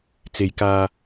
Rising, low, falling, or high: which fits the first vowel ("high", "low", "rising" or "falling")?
low